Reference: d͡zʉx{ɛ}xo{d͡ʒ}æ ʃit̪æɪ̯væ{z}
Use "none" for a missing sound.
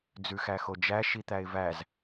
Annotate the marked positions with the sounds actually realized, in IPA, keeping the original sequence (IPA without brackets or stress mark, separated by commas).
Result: æ, d͡ʒ, z